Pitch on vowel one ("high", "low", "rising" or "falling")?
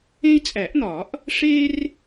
high